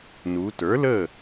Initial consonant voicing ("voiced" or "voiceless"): voiced